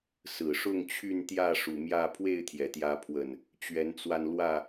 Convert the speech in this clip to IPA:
sɹ̩˨˩ʂʊ˥˨ŋt͡ɕʰy˥˨nt̪jä˥˨ ʂu˨˩mjä˥˨ pʰwe˥˨ɪ̯t̪ʰjɛ˩t̪jä˨˦pʰwə˨˩n | t͡ɕɥɛ˨˦nt͡swa˧nlwä˥˨

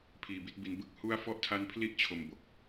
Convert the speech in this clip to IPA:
pʰiː˧bi˥˩t̚bi˧n bɯ˥˩k̚hu˥˩a̯ fɔ˥˩ʔtʰa˦˥npʰli˥˩ʔ t͡ɕʰo˧mbo˨˩k̚

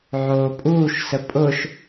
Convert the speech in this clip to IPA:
ʕoːpʼuːʃsə pʼʊʃ

